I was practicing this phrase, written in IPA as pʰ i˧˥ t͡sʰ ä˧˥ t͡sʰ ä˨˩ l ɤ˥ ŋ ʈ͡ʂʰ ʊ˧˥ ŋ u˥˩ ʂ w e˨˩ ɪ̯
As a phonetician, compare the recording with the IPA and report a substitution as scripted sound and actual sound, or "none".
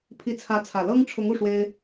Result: e˨˩ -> e˥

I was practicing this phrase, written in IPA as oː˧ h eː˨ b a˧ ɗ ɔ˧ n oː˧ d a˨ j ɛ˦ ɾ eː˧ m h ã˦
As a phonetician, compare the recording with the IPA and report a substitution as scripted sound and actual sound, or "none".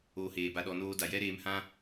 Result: none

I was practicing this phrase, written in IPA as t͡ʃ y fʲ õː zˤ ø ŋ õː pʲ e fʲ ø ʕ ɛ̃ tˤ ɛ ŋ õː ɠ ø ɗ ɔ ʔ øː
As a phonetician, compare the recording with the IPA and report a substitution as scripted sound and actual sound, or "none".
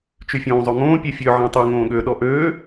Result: none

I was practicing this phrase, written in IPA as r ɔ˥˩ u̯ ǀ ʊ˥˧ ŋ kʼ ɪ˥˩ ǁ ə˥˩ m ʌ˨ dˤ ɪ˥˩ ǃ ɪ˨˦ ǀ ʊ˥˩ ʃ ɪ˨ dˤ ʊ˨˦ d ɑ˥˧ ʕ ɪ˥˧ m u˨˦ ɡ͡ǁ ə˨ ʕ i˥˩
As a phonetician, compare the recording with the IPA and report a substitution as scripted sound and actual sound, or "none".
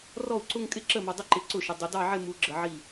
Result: none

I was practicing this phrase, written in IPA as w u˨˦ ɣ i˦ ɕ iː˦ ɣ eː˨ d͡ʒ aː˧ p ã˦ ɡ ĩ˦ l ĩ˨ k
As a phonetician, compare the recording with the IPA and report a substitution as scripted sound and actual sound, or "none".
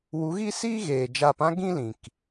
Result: ɕ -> s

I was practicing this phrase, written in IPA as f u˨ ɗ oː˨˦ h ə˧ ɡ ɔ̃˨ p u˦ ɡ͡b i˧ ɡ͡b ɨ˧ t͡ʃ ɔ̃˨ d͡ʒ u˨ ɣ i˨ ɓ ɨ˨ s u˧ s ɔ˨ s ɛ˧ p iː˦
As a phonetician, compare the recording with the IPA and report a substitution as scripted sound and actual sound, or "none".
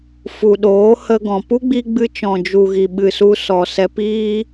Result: none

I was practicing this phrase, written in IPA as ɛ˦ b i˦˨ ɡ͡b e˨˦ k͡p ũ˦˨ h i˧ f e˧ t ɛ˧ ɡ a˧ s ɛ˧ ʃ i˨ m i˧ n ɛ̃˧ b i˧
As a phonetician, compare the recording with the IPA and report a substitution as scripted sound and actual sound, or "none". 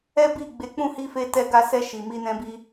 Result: none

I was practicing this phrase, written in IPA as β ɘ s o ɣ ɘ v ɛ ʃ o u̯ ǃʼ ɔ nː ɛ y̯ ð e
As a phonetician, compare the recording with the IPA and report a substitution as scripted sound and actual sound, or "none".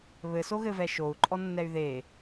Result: none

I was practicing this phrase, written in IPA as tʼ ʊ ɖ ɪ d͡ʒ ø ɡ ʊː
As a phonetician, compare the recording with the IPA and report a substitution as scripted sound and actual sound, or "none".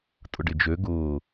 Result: none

